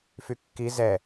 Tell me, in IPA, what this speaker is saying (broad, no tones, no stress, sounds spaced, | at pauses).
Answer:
f y kː i z ɛ